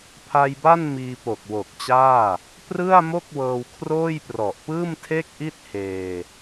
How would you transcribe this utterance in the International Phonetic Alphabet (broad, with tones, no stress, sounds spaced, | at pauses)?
pʰ a˧ j b a˥˩ n m iː˧ p o˨˩ k̚ w o˨˩ k̚ t͡ɕ aː˥˩ | p r ɯ˥˩ a̯ m o˥˩ k̚ w ɤː˧ w kʰ r oː˥˩ j p r ɔ˨˩ ʔ p ɯː˥˩ m tʰ e˥˩ k̚ ʔ i˥˩ t̚ h eː˧